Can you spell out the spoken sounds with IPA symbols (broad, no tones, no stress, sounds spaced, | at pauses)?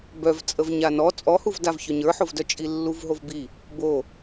b œ v t͡sʼ ə v ɲ a n ɔ t͡sʼ ɔ h u v d a v ç œ ɲ ə˞ ħ o v d œ t͡ʃʼ i lː u v ɦ o v b i | b o